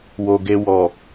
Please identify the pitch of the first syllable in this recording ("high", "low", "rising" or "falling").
low